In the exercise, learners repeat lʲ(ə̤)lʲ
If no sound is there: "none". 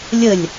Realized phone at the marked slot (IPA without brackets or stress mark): ə